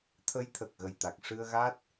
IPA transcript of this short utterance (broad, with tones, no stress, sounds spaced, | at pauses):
t̪ʰ ə˧˥ j t̪ʰ ə˨˩ k̚ ɣ ə˨˩ j t̪ a˨˩ k̚ ʂ ɨ˧ ə̯ ɣ a˦˥ t̚